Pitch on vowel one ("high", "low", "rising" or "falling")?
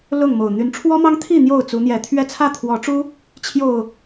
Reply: falling